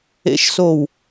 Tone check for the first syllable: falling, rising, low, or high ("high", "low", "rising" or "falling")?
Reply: rising